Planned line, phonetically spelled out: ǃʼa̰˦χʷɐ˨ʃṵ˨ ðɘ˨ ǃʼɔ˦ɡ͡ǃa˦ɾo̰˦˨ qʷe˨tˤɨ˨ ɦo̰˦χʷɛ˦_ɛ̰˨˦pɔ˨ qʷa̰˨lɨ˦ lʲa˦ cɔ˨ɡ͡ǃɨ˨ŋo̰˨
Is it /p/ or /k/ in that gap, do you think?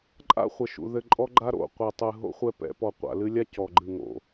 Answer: p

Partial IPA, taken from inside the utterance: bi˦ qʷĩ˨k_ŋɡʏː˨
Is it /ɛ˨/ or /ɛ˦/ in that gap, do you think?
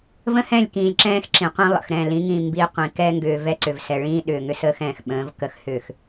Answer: ɛ˦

